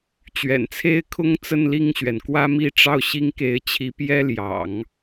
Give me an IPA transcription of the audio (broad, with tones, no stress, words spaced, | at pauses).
t͡ɕɥɛ̰˨˩nt͡sʰe˥ɪ̯kʰʊ˥ŋt͡sə˥˧n li˥˩ŋɕɥɛ˩n kwä˥mi˥˧ʈ͡ʂɑ˥˩ʊ̯ ɕi˥ŋke˧˥ɪ̯t͡ɕʰi˧˥pjɛ˥ ljɑ̰˨˩˦ŋ